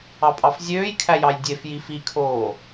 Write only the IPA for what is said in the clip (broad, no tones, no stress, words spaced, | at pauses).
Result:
ɑpʼɑfzʲøːjkʰæ jɑjdʲefji fikʰoː